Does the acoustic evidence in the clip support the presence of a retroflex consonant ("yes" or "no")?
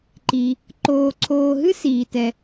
no